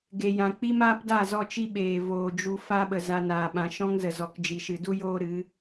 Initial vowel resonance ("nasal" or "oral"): oral